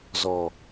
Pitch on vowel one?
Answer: low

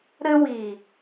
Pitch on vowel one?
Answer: high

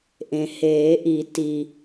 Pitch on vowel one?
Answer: low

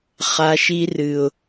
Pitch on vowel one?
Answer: low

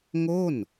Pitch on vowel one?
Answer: falling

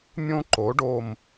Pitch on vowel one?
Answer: high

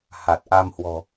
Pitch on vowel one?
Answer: low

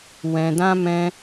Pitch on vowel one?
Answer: low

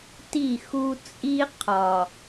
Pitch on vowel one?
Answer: falling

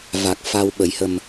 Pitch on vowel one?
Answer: low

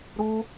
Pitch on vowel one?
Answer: high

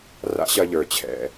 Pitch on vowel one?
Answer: high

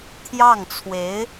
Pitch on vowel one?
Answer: falling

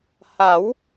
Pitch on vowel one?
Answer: rising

